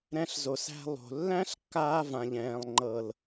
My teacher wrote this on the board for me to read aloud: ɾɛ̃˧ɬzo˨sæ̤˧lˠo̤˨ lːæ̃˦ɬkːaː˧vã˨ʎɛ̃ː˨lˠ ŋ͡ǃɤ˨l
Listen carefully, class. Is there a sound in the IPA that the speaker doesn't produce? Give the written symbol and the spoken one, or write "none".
none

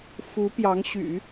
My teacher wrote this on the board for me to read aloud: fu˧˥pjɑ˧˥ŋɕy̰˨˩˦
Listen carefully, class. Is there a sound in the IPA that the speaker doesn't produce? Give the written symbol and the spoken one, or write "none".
none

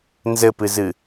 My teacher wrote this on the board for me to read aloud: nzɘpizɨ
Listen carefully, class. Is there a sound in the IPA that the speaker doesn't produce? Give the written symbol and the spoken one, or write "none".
i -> ɨ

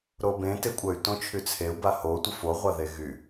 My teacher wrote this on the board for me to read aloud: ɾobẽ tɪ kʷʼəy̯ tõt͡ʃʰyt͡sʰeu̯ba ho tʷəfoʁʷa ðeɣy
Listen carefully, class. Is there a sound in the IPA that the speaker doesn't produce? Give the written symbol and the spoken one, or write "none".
none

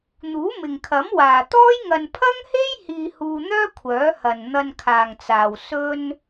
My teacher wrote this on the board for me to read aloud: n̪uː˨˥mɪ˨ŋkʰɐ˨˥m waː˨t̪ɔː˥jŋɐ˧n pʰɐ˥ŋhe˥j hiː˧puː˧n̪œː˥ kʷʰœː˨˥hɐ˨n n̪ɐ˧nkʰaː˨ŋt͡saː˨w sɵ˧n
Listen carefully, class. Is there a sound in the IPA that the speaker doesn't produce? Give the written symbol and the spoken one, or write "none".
p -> h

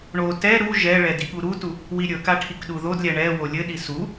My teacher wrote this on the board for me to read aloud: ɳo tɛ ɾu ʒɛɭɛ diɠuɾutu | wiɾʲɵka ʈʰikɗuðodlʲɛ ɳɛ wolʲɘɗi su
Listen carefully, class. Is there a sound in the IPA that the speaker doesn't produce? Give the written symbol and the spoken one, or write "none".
none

